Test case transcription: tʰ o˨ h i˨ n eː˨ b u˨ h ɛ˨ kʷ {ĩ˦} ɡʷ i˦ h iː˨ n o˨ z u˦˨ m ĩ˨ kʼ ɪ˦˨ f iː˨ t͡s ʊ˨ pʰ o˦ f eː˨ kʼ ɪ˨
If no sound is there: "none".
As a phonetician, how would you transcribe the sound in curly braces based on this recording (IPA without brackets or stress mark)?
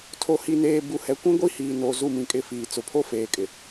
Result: ĩ˦